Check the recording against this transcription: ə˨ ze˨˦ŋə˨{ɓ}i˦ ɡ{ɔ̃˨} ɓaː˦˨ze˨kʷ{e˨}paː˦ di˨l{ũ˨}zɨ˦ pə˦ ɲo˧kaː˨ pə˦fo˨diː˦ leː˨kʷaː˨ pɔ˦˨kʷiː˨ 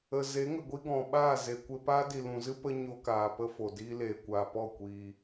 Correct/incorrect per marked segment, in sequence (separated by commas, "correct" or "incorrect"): incorrect, correct, incorrect, correct